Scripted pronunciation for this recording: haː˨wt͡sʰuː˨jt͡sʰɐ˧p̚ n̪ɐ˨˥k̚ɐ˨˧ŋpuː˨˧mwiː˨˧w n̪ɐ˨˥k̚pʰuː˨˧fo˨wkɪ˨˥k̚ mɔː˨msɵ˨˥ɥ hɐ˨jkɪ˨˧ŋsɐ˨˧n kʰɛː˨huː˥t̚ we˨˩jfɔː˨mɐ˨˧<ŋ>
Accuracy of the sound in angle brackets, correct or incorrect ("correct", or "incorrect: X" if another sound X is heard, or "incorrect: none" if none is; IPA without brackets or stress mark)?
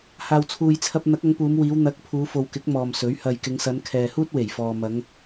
correct